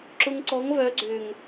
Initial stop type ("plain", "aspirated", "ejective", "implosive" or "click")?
click